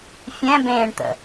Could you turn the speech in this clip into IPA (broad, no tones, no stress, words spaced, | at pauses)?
fʲɛ̃bẽːɳt̪ə̰